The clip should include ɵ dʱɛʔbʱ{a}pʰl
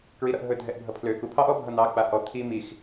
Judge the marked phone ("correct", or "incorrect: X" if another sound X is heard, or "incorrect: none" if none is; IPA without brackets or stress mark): incorrect: ʌ